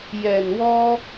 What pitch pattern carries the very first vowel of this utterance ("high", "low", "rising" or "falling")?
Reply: low